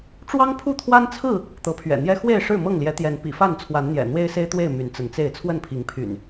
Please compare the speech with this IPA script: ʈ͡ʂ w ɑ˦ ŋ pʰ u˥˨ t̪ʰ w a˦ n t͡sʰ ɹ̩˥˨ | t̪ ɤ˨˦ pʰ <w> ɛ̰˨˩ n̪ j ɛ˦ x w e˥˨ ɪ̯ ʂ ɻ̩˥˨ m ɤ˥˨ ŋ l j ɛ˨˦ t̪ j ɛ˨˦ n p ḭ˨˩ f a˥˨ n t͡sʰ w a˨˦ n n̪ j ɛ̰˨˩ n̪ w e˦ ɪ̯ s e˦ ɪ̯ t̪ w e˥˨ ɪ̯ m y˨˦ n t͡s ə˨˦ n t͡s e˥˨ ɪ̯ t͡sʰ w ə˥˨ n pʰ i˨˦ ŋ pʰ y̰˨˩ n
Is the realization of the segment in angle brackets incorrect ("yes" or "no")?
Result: yes